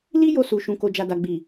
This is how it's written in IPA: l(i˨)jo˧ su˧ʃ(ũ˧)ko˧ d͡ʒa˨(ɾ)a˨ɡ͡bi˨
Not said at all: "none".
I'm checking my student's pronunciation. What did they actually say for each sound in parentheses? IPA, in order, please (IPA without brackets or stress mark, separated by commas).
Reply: i˦, ũ˧, d